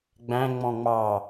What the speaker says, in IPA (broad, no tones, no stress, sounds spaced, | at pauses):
ɡ͡b æ̃ ŋ͡m ɔ̃ ŋ͡m ɑ